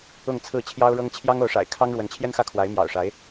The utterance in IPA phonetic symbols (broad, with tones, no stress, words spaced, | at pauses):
ʊ˥˧ŋt͡sʰɹ̩˥˩ t͡ɕʰjɑ˥ʊ̯ɻɤ˥ŋ t͡ɕʰjɑ˥ŋo˧˥ʊ̯ ʂa̰˨˩ɪ̯kʰɑ˥ŋ ɻwə˧˥nt͡ɕʰjɛ˥nxä˥˩ kʰwa˧˥ɪ̯mjɑ̰˨˩ʊ̯ʂa˧˥ɪ̯